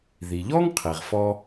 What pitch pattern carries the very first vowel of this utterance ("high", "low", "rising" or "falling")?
low